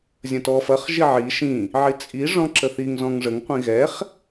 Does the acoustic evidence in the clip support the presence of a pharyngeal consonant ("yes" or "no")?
yes